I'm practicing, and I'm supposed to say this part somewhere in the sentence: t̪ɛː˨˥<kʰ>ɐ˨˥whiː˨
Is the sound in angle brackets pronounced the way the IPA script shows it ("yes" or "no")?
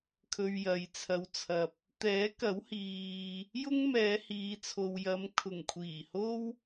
no